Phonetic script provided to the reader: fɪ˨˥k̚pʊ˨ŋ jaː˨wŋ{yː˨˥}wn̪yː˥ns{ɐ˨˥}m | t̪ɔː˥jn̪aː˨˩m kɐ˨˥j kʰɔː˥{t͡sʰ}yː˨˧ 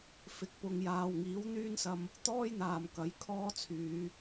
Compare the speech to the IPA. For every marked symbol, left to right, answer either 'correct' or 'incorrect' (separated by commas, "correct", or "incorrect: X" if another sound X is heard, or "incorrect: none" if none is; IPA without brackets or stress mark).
incorrect: iː˨˥, incorrect: ɐ˧, correct